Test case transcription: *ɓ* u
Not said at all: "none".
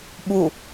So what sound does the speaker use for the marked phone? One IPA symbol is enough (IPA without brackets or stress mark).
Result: ɓ